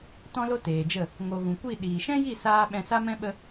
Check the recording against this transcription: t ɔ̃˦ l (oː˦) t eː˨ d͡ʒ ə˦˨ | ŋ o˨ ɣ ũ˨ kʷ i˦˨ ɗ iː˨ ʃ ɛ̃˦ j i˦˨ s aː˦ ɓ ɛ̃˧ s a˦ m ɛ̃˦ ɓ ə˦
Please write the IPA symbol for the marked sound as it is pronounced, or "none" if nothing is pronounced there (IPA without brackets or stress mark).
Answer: o˦